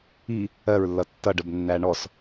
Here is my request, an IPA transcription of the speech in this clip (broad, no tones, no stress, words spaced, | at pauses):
i | ɜɹlːʌ tːʌɖəbnːæ ɳɔs